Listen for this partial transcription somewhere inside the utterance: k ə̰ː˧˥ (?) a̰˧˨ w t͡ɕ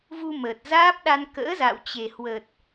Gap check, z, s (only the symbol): z